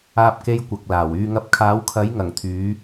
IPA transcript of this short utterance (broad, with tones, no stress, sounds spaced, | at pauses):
aː˥ p̚ k e˥ j kʷ ɐ˨ k̚ l aː˨˩ w yː˧ ŋ ɐ˧ p̚ kʰ aː˨˥ w kʰ ɐ˨˥ j ŋ ɐ˨˩ ŋ t̪ʰ yː˨˧